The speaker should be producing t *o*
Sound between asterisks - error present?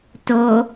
no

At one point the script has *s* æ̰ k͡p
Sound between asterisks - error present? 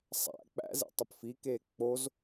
yes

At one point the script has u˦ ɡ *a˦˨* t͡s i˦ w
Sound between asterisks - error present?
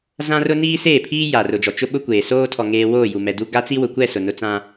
yes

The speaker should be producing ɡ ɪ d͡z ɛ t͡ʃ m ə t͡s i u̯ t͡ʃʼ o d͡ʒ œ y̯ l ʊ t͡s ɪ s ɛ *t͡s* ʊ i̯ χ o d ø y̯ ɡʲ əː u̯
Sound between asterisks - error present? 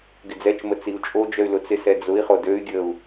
yes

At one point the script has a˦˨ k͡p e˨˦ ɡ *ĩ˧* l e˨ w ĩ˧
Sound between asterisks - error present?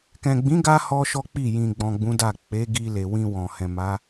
yes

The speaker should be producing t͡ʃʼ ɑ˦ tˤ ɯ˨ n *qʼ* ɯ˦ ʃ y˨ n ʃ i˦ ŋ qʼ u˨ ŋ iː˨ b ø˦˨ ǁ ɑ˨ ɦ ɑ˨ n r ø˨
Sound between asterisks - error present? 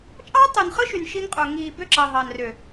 yes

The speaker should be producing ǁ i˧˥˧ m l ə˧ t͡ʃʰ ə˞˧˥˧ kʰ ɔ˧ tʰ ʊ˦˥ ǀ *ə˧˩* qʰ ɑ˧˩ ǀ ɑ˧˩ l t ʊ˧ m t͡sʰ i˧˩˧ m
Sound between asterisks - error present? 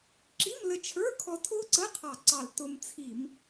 yes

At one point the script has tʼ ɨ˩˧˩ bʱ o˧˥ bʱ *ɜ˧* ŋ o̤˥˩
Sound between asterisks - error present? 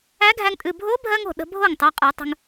no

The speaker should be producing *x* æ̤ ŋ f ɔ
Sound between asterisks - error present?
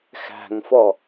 no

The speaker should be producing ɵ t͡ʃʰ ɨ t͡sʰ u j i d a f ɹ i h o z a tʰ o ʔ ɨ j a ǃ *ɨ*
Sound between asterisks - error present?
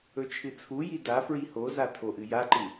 no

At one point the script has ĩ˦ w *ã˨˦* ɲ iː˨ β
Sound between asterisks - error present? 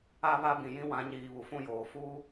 no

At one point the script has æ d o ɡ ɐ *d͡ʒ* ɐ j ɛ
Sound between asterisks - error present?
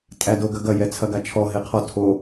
yes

